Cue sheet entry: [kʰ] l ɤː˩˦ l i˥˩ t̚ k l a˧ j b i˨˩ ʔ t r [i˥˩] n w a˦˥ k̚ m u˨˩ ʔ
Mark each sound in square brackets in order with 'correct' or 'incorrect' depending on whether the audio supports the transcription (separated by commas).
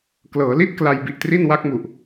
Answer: incorrect, correct